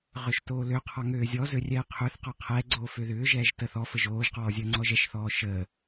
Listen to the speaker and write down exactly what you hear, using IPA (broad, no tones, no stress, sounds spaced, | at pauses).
ʁ ʏ ʃ t oː l ø qʰ ɔ ŋ øː zʲ ɔ z ø rʲ ɛː qʰ ʏː θ q ɔ qʰ ɛ ɡ͡ǀ oː f ø ð ʏː ʒ ɛː ʒ t ə θ ɔ f ə ʒ oː ʒ q ɔː zʲ əː ŋ͡ǀ ɔ ʒ ɛ ʃ θ ɔː ʃ əː